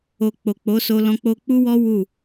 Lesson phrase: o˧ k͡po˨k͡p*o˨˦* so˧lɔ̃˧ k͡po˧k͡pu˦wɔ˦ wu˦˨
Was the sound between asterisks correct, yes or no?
yes